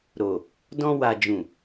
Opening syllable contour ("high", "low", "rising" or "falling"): low